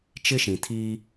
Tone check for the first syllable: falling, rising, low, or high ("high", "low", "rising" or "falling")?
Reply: high